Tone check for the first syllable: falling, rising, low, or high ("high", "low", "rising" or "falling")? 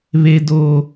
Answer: high